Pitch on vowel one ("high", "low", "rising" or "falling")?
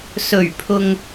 low